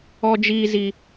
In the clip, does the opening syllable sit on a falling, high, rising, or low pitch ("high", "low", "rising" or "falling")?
high